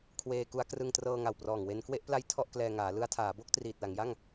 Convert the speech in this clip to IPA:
kʰ w eː˧ k u˦˥ a̯ k r ɯ˧ ŋ t r ɤː˧ ŋ a˨˩ w p r ɔː˨˩ ŋ w e˧ n k w e˥˩ ʔ p l a˦˥ j tʰ ɔ˥˩ ʔ k l ɛː˧ ŋ aː˩˦ l ɯ˧ a̯ tʰ aː˩˦ b o˥˩ k̚ t r iː˨˩ t̚ l a˩˦ ŋ j a˥˩ ŋ

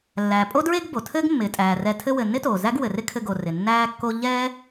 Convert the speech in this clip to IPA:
lː æː˩ pʼ o˥ d ɹ e˥ ɡ b o˩ tʰ ɘː˥ ɡ mː ɪː˩ tʼ æː˩ r ɛ˧ tʰ ɘ˥ w ɘ˩ nː ɪ˥ t oː˩ z æ˥ ɡ w ɘ˩ r ɪ˥ kʰ ɘ˧ ɡ o˩ r ɪ˩ nː æː˥ kː o˥ ʎ ɛː˥

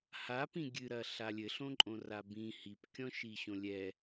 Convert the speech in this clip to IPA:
h a p ĩ ɡʲ ɨ ɾ ɐ ɬ a lʲ ɘ ɬ õ ǃʼ õ r a b ĩ h i p kʲ ɔ̃ ʃ i ɕ õ lʲ ɛ

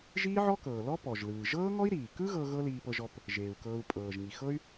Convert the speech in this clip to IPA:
ʒ iː˥ ʕ ɔ˥ k ɤː˩ l ɔ˥ p ɔ˩ ʒ l ɯː˩ ʒ ɤː˥ ŋ ɔ˥ i̯ ɾ iː˩ k ɯ˥ ɣ ɤ˧ ɣ ɤ˥ l iː˧ p ɤ˧ ʒ ɔ˧ p | ʒ eː˩ u̯ k ɤː˧ u̯ pʼ ɤː˩ ʒ ŋ i˩ x ɤ˥ y̯

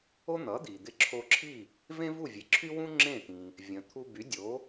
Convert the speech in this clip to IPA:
o˥ n̪ ʌ˩˥ d̪ i˩ d̪ ɪ˧ ǁʰ o˧ ǁʰ i˥˩ | v ẽ˥ v u˥˩ vʲ e˩ ǁʰ y˥ w ũ˥ ŋ͡ǁ ẽ˥˩ t̪ ĩ˩ | vʲ ə̃˩ t̪ʰ u˧ b y˩˥ dʲ o˩˥

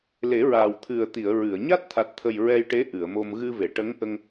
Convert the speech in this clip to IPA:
l e˨˩˦ ɹ aː˨˩ w t̪ʰ ɨ˨˩ ə̯ t̪ i˨˩˨ ə̯ ɹ ɨ˨˩˨ ə̯ ɲ a˦˥ t̚ t̪ʰ a˨˩ t̚ t̪ʰ ə˨˩ j ɹ ɛ˧ j ʈ e˧˥ ʔ ɨ˨˩˨ ə̯ m o˧ m ɣ ɨ˧ v e˨˩˨ ʈ ə˧˥ ŋ ʔ ə˧ ŋ

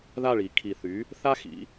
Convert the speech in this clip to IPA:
ð a˥˩ ɭ i˩˧ kʰ i˨˩ θ y˩˥ | θ a˥ x ḭ˩˥

